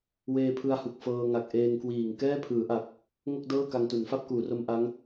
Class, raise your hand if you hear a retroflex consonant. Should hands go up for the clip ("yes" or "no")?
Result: no